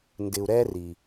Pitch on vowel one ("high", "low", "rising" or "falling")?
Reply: low